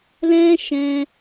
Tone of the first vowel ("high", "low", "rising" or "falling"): high